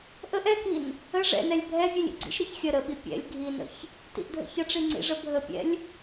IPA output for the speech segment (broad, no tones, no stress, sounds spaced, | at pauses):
ʔ ə ʔ ɛ k i n | ə ʐ ɛ̰ n ɛ lʲ bʱ ɛ vʲ ɛ lʲ ḭ ɡ͡ǀ ḭ ʃ ɾ ɛ ç xʲ ə ɾ ə ɓ i pʲ ɛ̰ lʲ ɡʱ i n ə̰ ç | t ḭ ʔ dʱ ə̰ ç ə ʈ͡ʂ i ŋ͡ǀ ḭ ʐ ə bʱ ə pʲ ɛ̰ lʲ